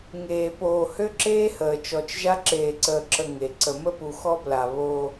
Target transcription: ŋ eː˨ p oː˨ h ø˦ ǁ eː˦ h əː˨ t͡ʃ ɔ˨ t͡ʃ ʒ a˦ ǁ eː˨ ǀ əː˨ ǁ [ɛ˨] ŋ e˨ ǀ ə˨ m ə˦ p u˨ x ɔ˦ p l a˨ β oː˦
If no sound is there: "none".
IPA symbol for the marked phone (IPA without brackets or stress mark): ə˨